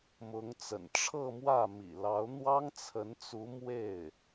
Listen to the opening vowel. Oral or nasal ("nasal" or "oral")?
oral